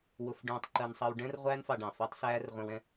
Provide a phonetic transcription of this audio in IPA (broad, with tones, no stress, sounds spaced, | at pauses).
w ʊ˧ f ɖ ũː˧ tˤ ǃ ɜ˧ n sˤ ʌ˧ w ɖ ɛ̃˦ r ʁʷ æː˦ n f ɑ˧ ɖ ɑ̃˨ f ɜ˦ tˤ s æː˦ r ʁʷ ɛ̃˧ w ɛ̃˦